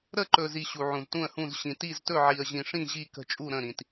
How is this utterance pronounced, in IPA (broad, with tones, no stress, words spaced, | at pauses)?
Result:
ɾə˥˧ǃɵ˧zi˧ ɕu˧ʕũ˧ztũ˥˧ə̯hũ˥˧z ɕĩ˧ti˥˧ztɵ˥˧ ʕi˧ə̯ʑĩ˧ʂĩ˥˧ ʑi˥˧kə̤˥˧ t͡ʃʼu˥˧ɾə̃˥˧ɾĩ˧t